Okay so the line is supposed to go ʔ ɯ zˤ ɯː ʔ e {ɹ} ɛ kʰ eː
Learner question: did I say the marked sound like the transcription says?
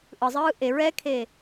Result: yes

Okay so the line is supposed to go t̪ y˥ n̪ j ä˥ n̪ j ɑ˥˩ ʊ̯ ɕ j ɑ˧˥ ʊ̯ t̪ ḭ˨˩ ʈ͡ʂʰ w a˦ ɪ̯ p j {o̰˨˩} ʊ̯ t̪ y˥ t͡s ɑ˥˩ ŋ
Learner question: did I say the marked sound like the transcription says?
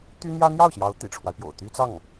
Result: yes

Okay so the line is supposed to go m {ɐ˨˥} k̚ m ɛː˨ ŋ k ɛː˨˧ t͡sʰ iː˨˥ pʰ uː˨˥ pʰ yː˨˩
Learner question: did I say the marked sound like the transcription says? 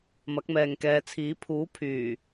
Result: yes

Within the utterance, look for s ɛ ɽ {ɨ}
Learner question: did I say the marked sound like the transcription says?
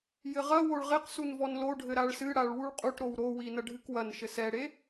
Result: no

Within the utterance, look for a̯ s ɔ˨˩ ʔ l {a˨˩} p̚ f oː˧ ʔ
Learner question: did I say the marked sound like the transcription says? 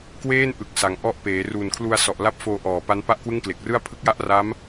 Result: no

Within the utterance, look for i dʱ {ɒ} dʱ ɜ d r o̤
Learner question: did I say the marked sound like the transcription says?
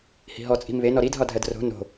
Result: yes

